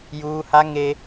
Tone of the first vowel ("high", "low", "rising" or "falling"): high